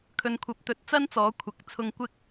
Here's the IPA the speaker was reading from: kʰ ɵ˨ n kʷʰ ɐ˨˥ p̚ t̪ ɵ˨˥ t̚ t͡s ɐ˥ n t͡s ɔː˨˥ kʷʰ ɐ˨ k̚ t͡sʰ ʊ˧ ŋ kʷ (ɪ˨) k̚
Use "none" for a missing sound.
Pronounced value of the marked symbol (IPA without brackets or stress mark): ɪ˥